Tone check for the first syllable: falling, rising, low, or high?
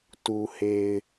low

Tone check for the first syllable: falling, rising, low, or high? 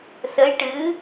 rising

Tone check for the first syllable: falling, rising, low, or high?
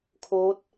rising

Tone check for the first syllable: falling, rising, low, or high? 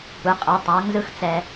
rising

